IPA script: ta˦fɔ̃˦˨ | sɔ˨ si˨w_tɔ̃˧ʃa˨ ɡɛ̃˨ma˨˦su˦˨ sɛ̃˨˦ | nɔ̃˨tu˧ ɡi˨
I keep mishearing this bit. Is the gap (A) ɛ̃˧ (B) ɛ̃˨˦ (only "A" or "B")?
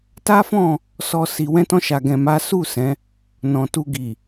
A